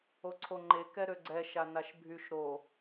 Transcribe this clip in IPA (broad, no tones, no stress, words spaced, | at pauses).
oǀʰoŋ͡ǃe kɛɾøɡ͡ǀɛ ʃanaʃbʱyʃ ɾo